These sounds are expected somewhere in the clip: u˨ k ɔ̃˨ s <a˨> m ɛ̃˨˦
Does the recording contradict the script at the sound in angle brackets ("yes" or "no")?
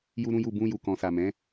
no